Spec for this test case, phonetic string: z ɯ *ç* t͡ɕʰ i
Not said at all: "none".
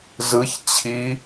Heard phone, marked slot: ç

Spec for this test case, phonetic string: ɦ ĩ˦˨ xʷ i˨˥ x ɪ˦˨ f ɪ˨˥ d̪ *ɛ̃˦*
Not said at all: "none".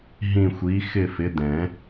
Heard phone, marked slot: ɛ̃˨˩˦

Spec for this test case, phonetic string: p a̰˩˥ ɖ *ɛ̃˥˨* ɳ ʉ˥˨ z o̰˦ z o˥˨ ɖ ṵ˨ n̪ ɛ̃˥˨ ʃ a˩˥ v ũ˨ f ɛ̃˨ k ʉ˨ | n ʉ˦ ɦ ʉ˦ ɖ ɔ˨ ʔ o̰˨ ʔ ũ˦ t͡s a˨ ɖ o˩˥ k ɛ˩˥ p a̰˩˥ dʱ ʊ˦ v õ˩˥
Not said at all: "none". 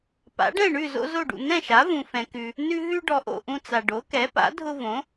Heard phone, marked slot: ɛ̃˥˨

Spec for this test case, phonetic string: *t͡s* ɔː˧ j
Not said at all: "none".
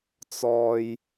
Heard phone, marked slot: t͡s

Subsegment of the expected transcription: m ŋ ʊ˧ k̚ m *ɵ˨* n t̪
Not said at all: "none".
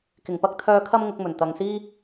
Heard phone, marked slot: ɵ˨˩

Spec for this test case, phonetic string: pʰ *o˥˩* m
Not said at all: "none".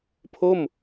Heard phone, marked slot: o˥˩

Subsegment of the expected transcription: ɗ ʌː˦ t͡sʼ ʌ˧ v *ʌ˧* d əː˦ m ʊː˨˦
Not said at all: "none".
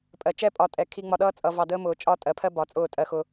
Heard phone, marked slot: ɑ˧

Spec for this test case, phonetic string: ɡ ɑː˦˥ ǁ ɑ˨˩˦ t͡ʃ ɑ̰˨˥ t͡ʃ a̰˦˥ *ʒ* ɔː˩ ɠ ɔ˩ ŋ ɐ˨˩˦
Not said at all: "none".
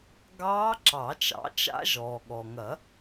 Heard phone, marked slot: ʒ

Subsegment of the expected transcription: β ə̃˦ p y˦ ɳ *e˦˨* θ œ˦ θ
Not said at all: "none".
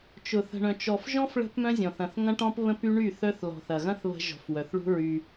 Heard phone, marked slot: y˦˨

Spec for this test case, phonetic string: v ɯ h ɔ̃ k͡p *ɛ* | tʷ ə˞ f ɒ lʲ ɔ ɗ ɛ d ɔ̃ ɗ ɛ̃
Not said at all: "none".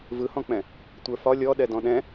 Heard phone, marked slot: ɛ̃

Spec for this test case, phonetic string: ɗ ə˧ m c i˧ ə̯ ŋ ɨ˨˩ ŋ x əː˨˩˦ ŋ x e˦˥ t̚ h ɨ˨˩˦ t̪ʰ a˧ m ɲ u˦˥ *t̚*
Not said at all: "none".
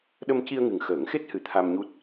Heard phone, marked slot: t̚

